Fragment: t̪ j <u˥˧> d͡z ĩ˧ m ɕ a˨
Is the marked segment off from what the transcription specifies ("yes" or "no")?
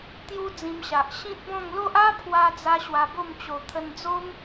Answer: yes